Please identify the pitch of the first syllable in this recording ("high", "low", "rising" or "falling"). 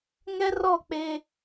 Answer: high